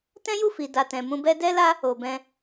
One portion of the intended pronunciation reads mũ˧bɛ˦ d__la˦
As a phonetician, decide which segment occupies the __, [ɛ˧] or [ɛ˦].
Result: ɛ˦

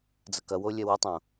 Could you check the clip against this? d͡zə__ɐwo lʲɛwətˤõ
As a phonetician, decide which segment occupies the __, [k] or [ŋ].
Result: k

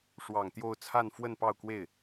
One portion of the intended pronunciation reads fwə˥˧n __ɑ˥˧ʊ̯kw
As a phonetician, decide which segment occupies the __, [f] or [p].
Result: p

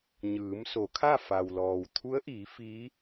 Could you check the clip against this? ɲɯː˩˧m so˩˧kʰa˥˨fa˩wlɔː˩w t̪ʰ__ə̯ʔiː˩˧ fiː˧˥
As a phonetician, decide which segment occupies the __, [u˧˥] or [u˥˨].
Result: u˧˥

